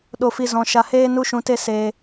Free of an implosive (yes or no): no